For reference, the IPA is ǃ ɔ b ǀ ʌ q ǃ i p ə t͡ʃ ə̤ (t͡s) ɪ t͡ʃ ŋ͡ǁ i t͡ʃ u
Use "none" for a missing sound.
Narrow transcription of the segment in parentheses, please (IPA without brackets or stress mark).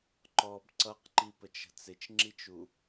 t͡s